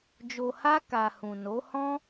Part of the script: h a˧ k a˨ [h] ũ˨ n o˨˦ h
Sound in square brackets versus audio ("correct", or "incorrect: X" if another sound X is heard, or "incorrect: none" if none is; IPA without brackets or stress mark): correct